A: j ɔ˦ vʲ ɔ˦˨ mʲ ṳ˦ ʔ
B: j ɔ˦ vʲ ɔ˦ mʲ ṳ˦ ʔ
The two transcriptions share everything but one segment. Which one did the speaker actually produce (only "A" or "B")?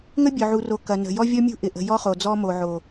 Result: B